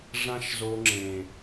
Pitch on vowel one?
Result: high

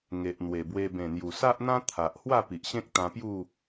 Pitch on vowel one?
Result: low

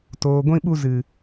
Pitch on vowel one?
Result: low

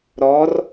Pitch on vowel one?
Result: rising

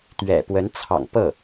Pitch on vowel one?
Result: low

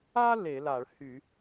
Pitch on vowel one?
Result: high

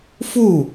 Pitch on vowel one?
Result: falling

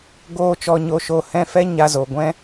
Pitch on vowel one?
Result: falling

